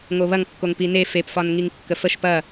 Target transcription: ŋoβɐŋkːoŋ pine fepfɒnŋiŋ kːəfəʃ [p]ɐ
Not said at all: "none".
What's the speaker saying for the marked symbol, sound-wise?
p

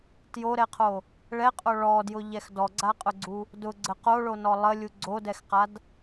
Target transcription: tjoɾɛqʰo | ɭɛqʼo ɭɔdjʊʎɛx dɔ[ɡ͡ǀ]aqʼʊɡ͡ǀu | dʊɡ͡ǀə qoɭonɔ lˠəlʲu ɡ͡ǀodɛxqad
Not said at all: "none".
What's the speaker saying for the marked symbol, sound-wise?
ɡ͡ǀ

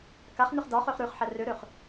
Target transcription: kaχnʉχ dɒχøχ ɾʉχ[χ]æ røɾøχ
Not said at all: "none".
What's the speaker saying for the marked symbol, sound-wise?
ħ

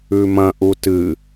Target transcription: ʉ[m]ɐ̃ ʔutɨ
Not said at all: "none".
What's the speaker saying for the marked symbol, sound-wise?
m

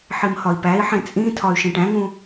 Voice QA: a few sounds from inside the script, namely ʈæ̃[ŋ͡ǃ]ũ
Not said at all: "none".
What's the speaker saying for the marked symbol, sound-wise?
ŋ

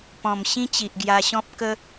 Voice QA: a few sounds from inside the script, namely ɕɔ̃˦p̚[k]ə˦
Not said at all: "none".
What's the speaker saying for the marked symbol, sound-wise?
k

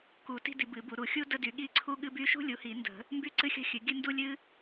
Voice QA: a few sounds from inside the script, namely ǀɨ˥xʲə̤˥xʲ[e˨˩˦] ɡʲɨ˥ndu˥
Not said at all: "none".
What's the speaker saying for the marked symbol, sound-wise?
ɨ˨˩˦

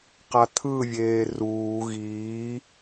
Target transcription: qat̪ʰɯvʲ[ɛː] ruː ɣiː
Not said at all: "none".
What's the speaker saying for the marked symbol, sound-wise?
eː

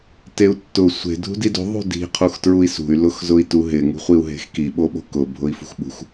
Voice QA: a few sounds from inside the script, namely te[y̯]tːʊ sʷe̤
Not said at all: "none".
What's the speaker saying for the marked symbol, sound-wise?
u̯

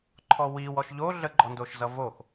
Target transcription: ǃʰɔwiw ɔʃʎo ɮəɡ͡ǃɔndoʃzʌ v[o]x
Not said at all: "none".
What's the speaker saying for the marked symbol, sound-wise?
o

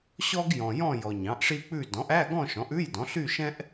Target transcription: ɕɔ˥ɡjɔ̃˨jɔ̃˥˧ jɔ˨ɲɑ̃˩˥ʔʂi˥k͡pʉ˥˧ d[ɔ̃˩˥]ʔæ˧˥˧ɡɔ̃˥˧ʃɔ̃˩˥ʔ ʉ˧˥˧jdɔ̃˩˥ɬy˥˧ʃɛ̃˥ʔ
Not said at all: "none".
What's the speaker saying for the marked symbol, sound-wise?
ɔ̃˩˥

